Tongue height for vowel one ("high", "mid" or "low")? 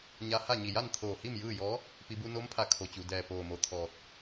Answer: low